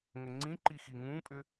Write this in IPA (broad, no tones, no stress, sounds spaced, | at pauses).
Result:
ŋ ə ŋ͡ǀ ĩ ǃ i x i ŋ ũ pʼ ʏ